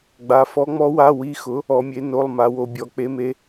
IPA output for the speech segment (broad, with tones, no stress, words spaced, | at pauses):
ɡ͡ba˧˥ fɔ˧˥ŋ͡mɔ˧˥wa˧˥˧ wi˧˥˧xʊ˧˥ | ɔ˧˥mʲe˧˥no˧˥˧lˠ ma˧˥wo˧˥bʲɔ˧˥ k͡pe˧˥me˧˥